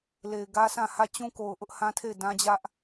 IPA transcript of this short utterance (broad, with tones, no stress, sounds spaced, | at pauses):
l e˨ ɪ̯ ɡ ä˦ sʰ ã˦˨ h ä˦˨ t͡ɕ ũ˦ k o˨ ʊ̯ ʔ ʊ˦ ʔ h ã˦ tʰ e˦˨ ɪ̯ d ã˦ d͡ʑ ä˦ ʔ